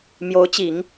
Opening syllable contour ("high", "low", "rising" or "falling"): rising